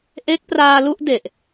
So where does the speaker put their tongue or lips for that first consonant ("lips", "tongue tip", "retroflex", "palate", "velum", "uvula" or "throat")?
throat